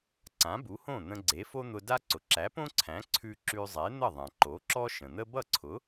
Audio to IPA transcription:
ǀ ã˩˥ b u˩˥ h õ˥˩ n̪ ə̃˧ ɡ͡ǀ e˩˥ f o˥ n̪ ʊ˧ d a˥ ǀ ʊ˩ ǁ æ˩˥ p õ˥ ǀʰ æ̃˩˥ ǀʰ ʉ˧ ǁ ʉ˧ zˤ e˩˥ n̪ ə˥˩ ðˤ æ̃˩ ǃ o˩˥ ǁ ɔ˥ ʃ ə̃˩ n̪ ə˥ b ʌ˥˩ ǀʰ ʊ˩˥

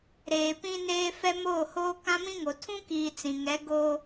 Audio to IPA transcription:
ɾ eː˨ p ĩ˦ n eː˦ f ɛ˦ m oː˦˨ h oː˦ k ã˦ m ĩ˦ ŋ o˨ tʰ ũ˦ k iː˨ t͡s ĩ˨ ŋ ɛ˨˦ ɡ oː˦

